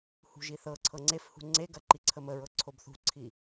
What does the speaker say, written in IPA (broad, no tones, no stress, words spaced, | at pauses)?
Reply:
hṳʒiθɤǀʰɤ ŋ͡ǀefhṳ ŋ͡ǀeɡɐ ǃiǀʰəməɹɤ ǀʰobθṳǀʰi